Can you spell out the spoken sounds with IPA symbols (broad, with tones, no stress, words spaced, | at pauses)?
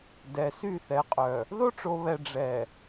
dɛ˨sy˦˨θɛ˨qʼœ˨ | ðo˦ʈ͡ʂo˨βɛ˨ ɖ͡ʐɛ˨